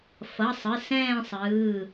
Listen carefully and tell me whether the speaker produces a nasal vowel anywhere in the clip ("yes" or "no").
yes